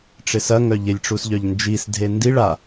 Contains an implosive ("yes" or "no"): no